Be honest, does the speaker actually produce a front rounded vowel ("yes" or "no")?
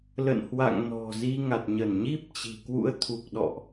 no